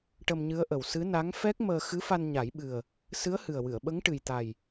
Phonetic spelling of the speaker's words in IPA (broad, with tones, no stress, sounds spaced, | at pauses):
ʈ ə˧ m ɲ ɨ˧˥ ə̯ ʔ ə˨˩ w s ɨ˧˥ n a˧˥ ŋ f ɛ˦˥ k̚ m əː˧ x ɨ˧˥ f a˧ n ɲ a˨˩˦ j ɓ ɨ˨˩ ə̯ | s ɨ˧˥ ə̯ h ɨ˨˩ ə̯ w ɨ˨˩˨ ə̯ ɓ ə˧˥ ŋ ʈ ɨ˨˩ j t̪ a˨˩ j